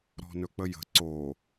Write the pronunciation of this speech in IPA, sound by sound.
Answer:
ɾ ɔ̤ n ɵ k͡p ə j ə̤ ǀ o

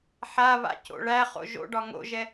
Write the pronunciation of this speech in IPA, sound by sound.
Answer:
ħ a β a̰ c o̰ ɭ æ χ o̰ ʒ o̰ ɖ ɒ ŋ o̰ ʒ ɛ

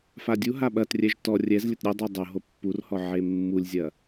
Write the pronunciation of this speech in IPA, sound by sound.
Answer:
f a dʲ u ɦ a ɓ ɐ t rʲ ɛ ʒ t ɔ rʲ ɛ z lʲ ɘ t ɾʲ u dˤ ɨ dˤ o ɦ o pː u r h ɔ ʕ e mː u lʲ zʲ ɐ

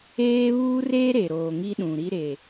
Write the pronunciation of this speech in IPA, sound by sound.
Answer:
eː˦ β uː˦ r eː˦ ɾ e˨ ɾ oː˨ ŋ i˦ ɗ ũ˨ ɾ i˦ ɾ e˨

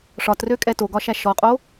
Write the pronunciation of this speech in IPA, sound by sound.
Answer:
ʂ ɒ t r ø kʼ ɛ t o ɡ ɒ ʃ æ ʃ ɔ qʼ o

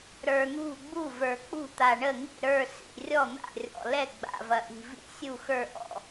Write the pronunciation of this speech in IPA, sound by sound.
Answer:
ɾ ə˞˨˩ n̪ ṳ˥˩ ɡ͡b u˥˩ v ə˞˨˩ k͡p ṳ˥˩ t̪ a˨˩ ɳ ə˥˩ ŋ ḭ˥˩ ɾ ə˞˥˩ s ḭ˥˩ rʲ ɔ˥˩ n̪ a̰˥˩ rʲ ɔ̰˨˩ l ɛ˥˩ ɡ͡b a̰˨˩ v ɐ˨˩ ʔ i̤˨˩ v ḭ˥˩ sʲ u˥˩ x ə˞˥˩ ʔ ɔ̰˥˩

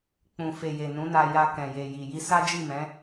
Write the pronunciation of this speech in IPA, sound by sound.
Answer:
k͡p ũ˨ f e˨ j e˨ n ũ˨˦ n a˧ j a˧ k ɛ̃˨ j e˨ j i˨ j i˧ s a˦ d͡ʒ i˦˨ m ɛ̃˨˦

